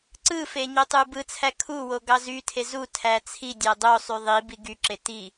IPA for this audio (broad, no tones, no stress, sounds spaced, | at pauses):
ǀ ɯ f e ɲ o tˤ u b ɯ t͡sʰ æ kʰ u w o ɡ ɑ z y tʰ e z u tʰ æ t͡sʰ i dʲ æ dˤ o sˤ y ðˤ i b i ɡ y ǁ e t i